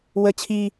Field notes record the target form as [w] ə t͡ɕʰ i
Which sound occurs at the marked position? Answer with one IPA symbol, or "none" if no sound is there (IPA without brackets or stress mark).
w